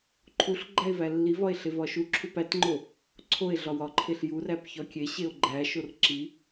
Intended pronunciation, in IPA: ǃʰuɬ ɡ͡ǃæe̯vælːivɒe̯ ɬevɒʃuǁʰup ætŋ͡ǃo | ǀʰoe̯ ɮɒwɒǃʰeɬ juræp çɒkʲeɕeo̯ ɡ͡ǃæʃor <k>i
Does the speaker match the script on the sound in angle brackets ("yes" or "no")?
no